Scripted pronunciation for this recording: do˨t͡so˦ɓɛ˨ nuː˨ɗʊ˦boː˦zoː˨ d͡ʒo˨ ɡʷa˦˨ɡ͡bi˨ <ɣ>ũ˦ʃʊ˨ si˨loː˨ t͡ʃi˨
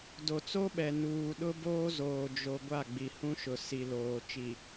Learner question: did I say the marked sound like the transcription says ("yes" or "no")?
no